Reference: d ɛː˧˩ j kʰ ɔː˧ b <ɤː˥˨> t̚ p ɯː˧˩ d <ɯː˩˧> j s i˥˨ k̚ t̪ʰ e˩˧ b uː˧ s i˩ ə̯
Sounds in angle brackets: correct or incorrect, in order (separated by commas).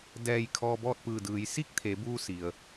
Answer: incorrect, correct